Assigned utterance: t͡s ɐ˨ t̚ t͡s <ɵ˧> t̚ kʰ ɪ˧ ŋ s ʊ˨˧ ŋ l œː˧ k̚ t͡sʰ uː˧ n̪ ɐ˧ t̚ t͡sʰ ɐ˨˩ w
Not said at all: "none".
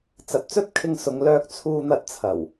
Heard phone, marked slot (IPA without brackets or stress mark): ɵ˥